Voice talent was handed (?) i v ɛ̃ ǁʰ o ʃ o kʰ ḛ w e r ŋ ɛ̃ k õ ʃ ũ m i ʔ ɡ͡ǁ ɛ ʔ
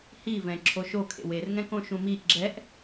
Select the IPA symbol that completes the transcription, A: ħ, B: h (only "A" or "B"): B